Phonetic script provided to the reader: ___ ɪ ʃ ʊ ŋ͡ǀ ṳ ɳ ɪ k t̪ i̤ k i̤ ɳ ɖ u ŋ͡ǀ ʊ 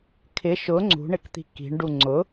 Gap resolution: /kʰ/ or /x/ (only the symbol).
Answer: kʰ